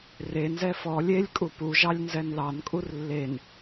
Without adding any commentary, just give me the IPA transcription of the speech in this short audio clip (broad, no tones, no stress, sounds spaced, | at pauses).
r e n z ɛ f ɔ lʲ e lʲ kʼ u p u ʒ ɑ lʲ n z ɛ n l ɑ n kʼ u r lː e n